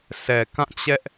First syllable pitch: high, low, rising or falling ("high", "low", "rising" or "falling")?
low